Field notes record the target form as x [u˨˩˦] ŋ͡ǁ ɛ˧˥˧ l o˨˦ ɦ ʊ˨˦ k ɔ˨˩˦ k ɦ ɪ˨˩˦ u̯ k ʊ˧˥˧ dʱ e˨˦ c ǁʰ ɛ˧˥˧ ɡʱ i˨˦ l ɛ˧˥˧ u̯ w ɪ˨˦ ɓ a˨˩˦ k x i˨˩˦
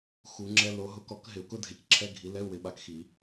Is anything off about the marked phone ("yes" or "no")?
no